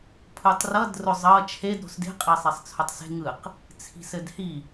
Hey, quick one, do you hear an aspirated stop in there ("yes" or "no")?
yes